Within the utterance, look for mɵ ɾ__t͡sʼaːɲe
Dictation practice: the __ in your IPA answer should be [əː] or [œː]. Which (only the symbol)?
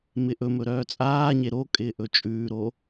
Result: œː